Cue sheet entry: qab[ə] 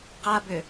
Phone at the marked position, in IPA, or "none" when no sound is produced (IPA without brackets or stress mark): ʏ